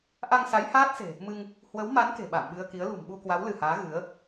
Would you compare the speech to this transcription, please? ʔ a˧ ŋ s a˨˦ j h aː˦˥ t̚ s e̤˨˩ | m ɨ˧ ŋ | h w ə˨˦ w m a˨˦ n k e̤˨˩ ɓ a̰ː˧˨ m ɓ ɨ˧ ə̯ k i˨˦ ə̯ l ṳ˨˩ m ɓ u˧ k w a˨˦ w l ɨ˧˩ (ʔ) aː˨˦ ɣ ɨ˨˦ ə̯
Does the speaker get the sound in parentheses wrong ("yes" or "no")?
yes